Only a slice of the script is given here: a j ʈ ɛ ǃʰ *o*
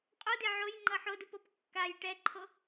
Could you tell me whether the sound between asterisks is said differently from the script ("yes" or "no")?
no